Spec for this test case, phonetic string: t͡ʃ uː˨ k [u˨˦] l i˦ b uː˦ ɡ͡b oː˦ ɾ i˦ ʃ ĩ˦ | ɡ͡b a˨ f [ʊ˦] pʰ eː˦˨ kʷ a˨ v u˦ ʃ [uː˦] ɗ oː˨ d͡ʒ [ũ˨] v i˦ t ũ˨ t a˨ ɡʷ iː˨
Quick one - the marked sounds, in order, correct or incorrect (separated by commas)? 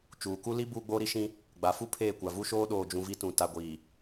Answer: incorrect, incorrect, incorrect, correct